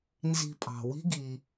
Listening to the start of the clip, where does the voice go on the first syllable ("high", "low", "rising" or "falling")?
low